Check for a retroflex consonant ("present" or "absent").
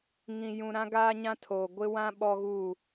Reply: absent